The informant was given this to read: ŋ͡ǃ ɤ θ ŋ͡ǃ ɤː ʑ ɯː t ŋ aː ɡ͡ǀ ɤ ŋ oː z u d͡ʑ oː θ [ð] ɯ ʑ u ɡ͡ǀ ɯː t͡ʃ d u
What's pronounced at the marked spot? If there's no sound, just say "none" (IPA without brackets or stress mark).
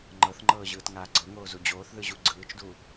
ð